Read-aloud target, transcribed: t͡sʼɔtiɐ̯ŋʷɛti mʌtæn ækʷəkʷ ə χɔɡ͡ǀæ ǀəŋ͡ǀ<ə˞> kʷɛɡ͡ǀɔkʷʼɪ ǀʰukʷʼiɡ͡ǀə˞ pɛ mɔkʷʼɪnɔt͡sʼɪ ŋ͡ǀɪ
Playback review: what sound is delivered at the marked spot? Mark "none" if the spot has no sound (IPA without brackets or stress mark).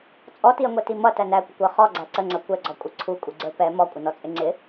ʌ